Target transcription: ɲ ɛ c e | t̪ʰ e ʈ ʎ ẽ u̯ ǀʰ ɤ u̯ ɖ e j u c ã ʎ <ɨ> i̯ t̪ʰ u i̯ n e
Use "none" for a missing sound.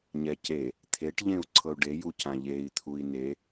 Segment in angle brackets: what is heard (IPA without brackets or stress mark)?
e